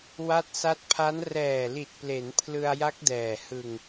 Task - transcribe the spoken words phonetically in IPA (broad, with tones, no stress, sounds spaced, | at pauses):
w a˦˥ t̚ s a˦˥ t̚ pʰ a˦˥ n r ɛː˨˩ l i˨˩ t̚ p l e˩˦ n pʰ l ɯ˧ a̯ j a˦˥ k̚ d ɛː˨˩ h ɯ˧ ŋ